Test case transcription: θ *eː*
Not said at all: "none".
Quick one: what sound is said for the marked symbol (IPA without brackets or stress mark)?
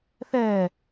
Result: ɛː